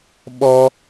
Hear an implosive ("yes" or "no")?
yes